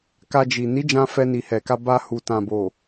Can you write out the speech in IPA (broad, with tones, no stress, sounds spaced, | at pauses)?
k a˧ d͡ʒ i˨ n i˨˦ d͡ʒ ã˧ f ɛ˧ n i˨ h ɛ˨ k a˧ b a˧ h u˨ t ã˨ b o˨